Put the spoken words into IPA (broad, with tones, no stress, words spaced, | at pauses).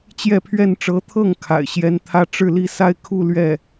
t͡ɕjɛ˥˧pʰɥɛ˥˩n ʈ͡ʂɤ˧˥t̪ʰɤ˥˩ŋ kʰa̰˨˩ɪ̯ɕjɛ˥n t̪ʰä˥˧ ʈ͡ʂɻ̩˥˧li˥˧sa˥˧ɪ̯kʰu˥˧ lɥɛ˥˩